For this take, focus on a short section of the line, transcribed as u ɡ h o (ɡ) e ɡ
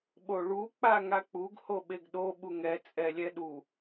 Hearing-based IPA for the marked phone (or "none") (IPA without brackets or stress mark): ɓ